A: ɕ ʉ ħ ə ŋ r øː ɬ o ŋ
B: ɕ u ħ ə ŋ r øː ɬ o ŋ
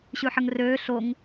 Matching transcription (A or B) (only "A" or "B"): A